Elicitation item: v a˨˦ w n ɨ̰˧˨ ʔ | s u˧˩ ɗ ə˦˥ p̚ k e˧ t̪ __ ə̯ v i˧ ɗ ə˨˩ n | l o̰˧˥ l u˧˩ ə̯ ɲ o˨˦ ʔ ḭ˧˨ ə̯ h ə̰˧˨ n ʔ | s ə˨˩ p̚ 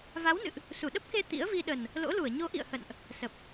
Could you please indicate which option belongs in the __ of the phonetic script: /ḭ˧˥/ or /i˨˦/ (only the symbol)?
ḭ˧˥